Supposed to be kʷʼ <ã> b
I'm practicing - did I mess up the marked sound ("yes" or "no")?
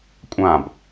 no